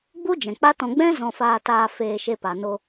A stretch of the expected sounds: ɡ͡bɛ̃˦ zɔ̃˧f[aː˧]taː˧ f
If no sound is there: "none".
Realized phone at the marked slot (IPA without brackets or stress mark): aː˧